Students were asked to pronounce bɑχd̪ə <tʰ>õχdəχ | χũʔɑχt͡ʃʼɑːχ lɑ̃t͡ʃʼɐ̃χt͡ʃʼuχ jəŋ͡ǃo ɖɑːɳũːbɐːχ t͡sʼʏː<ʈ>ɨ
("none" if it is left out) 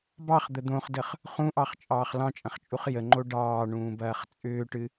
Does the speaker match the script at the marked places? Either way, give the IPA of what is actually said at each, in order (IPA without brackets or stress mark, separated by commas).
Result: d̪, ʈ